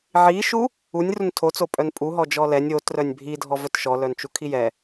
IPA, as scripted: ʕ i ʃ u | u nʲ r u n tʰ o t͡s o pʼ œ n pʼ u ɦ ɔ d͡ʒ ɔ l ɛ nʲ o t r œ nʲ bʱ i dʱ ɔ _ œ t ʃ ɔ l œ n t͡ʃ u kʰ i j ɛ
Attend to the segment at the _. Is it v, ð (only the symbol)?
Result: v